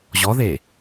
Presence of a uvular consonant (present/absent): absent